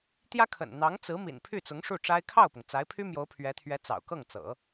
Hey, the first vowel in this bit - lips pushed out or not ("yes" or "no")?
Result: no